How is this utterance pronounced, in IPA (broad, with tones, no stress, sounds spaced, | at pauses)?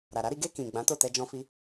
ɾ a˨ ɾ a˨˦ ɾ i˧ ɡ e˧ k ĩ˨ ɡ͡b ã˨˦ t o˦˨ t ɛ˧ d͡ʒ ɔ̃˧ f i˧